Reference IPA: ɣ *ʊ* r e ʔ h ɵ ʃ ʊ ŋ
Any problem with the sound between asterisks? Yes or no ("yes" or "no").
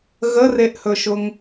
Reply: yes